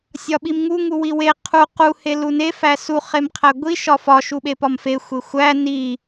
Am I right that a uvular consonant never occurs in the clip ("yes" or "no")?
no